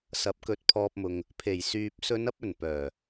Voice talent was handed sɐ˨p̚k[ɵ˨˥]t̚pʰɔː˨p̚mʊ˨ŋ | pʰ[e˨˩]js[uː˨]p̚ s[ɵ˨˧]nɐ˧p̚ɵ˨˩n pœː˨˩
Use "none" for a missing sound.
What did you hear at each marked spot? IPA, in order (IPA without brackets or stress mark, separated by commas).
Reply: ɵ˨˥, e˨˩, yː˨, ɵ˨˧